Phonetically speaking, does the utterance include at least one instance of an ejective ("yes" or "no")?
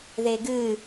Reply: no